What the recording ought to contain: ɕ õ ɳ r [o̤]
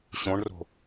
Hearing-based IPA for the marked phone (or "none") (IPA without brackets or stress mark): o̤